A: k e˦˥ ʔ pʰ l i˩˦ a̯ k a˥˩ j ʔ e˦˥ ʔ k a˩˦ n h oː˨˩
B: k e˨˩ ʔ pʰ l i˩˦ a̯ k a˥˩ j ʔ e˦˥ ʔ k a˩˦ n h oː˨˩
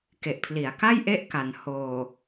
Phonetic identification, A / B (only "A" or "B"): B